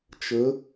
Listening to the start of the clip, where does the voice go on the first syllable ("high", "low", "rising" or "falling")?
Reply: rising